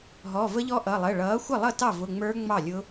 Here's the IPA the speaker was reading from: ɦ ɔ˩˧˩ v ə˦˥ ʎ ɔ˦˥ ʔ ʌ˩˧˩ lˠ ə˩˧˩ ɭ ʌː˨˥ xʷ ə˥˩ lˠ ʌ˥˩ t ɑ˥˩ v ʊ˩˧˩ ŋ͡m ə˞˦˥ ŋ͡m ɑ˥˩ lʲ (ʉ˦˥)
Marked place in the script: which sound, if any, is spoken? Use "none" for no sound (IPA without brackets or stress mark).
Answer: ʊ˦˥